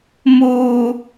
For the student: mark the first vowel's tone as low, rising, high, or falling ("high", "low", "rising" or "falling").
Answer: low